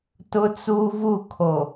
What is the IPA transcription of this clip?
tʊ˦t͡su˦vu˦˨kʰo˨

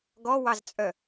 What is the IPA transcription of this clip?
ɡɔwɑzt͡sʼœ

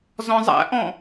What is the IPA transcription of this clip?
zɔ̃zˤæ̰ʔɔ̃

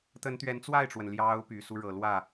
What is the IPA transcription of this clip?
t̪ə˧˥nt̪ɥɛ˧˥nt͡swa˥˩ɪ̯ʈ͡ʂwə˩n ljɑ˧˥ʊ̯ py˨˩su˦ɻɤ˨˩ lwä˥˩

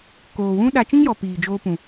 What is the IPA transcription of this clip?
koː˨wũ˦ ɗa˦ t͡ʃĩ˦ŋjɔ˨ piː˨d͡ʒoː˧pũ˨

